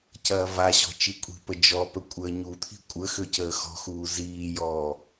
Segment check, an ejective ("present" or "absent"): present